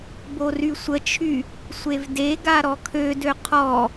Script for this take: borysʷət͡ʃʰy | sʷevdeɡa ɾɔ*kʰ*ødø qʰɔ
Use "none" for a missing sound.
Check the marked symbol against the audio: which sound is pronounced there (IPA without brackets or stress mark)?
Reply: kʰ